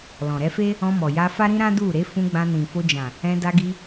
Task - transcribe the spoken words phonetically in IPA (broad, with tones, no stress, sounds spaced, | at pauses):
l ɔ̃˨ ɾ ɛ˧ f e˦ | ɔ̃˧ m ɔ˨ j a˧ f a˦ ɾ ĩ˦ ɾ ã˦ d u˦˨ ɾ e˨˦ f ũ˧ ɡ͡b ã˧ n ĩ˨ f o˧ d͡ʒ ã˨ | ɛ̃˧ d a˧ ɡ i˧